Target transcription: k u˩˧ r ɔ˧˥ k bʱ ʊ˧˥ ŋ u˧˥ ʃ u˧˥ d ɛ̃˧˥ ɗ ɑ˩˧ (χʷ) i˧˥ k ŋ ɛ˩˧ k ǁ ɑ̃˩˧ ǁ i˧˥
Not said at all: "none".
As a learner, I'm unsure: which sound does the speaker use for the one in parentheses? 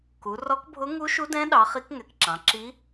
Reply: χ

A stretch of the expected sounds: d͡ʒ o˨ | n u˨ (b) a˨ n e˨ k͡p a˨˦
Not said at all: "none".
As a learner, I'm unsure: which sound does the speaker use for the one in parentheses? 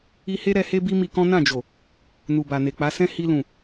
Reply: b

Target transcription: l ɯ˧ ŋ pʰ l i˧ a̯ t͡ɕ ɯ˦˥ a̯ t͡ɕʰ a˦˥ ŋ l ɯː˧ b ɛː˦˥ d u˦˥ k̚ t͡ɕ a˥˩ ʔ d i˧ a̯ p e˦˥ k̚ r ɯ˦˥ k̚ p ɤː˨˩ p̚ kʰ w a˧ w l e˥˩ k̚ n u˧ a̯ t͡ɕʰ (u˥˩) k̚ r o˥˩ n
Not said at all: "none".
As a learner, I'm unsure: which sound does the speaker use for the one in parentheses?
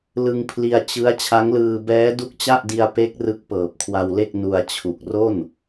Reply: u˨˩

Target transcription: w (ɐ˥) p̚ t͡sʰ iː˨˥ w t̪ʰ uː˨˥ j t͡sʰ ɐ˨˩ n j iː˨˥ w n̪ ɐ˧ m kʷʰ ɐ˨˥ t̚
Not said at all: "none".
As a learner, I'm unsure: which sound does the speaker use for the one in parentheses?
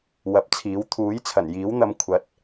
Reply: ɐ˨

